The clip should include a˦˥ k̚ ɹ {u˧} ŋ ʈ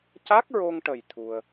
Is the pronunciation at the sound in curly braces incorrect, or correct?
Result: incorrect